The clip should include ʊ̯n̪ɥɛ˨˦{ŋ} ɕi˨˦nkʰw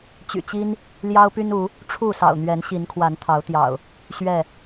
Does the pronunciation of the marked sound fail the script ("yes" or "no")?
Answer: yes